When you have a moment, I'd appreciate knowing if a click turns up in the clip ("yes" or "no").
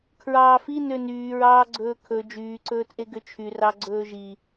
yes